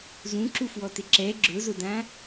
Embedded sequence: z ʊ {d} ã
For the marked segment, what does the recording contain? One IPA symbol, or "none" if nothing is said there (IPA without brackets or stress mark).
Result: d